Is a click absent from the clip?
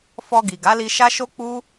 yes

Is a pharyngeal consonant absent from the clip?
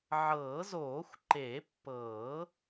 no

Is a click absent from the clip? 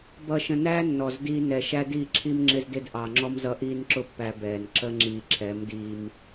no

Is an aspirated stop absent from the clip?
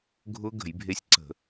yes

